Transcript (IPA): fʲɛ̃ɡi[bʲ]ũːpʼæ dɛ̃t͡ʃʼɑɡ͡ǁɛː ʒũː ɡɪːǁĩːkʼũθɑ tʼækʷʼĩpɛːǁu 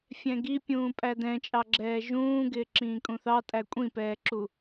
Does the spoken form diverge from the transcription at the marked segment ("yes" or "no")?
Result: yes